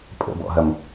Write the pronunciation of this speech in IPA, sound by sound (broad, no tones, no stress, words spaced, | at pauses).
pʼə̰bɔ̰ɦɐm